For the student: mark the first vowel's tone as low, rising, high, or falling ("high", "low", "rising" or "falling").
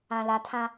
low